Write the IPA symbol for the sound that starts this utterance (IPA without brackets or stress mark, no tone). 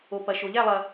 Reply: o